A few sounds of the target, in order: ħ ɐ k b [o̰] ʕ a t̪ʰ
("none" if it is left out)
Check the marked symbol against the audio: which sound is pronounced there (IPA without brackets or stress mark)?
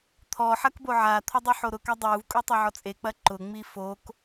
o